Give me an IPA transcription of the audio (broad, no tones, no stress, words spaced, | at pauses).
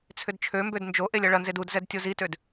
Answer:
t͡sʰʏdt͡ʃʰømbød nd͡ʒo ʔelʲɐɭɐnzed udzɛd tʲozitød